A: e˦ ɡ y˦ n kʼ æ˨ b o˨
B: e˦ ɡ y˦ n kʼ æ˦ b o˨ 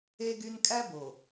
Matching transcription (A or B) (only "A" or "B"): B